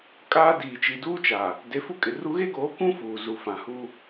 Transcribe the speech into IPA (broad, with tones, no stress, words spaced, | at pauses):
kʼaː˦diː˨ t͡ʃi˨duː˦t͡ʃaː˨ | de˨˦fu˦˨kʼɪ˨ru˦ ɣe˦ɡoː˨˦ kũ˦ fuː˨ zu˨fã˨huː˦